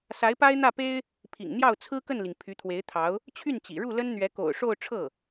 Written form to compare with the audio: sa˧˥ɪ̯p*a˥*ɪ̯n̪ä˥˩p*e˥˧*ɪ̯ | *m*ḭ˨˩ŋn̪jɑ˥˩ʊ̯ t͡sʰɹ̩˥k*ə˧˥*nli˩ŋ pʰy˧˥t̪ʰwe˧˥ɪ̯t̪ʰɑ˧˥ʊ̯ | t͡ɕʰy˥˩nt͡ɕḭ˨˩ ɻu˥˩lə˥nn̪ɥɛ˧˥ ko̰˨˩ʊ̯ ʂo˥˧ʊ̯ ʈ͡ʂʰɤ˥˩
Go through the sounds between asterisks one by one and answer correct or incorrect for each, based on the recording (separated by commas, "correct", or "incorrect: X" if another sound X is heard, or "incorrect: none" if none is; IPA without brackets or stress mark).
correct, incorrect: e˥, incorrect: pʰ, incorrect: ə˥˩